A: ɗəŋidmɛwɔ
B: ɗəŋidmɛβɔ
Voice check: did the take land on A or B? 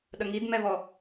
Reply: B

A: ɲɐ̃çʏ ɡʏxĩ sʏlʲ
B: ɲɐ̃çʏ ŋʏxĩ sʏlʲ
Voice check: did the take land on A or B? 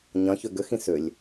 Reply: A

